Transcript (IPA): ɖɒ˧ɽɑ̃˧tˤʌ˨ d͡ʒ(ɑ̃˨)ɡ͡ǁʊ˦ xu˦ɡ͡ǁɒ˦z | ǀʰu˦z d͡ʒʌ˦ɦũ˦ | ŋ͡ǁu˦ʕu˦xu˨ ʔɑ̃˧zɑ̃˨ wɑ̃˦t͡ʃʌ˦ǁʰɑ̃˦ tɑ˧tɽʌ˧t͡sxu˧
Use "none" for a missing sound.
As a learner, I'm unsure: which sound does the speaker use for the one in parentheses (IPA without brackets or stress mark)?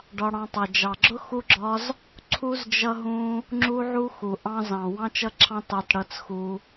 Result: ɑ˨